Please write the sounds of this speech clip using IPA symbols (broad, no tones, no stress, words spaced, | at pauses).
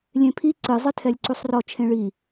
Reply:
lʲẽpʰi ǀɨ zˤɨtʰɛlʲǀusˤrɔ t͡ʃʰẽɭi